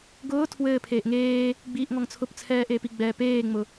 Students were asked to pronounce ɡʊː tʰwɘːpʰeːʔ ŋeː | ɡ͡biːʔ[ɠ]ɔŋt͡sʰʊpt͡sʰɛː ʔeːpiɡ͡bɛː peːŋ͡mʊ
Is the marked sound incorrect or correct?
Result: incorrect